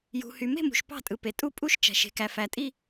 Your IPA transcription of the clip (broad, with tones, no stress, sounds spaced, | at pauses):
j ṳ˨ h y˨ m e̤˥˧ m ṳ˨ ʃ p ɑ̤˥˧ tʼ ɯ˨ p e˨ tʼ u˥˧ pʼ u˥˧ ʃ t͡ʃ æ̤˨ ʃ e̤˨ k æ˨ f æ˨ tʼ i˥˧